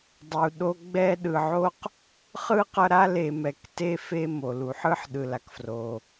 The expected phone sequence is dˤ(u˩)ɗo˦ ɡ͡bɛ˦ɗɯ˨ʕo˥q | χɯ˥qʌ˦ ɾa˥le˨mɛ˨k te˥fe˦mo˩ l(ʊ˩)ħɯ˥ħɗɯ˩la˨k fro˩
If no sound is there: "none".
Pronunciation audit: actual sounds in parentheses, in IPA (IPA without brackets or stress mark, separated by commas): u˩, u˩